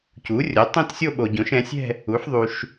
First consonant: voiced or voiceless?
voiceless